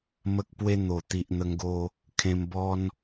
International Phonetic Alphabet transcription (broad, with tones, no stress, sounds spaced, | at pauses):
m ə˦ k̚ p w e˦ n̪ o˨˩ t̪ i˨ ʔ n̪ ə˧ ŋ ɡ o˧ | kʰ ẽ˧ m b ɔ˦ n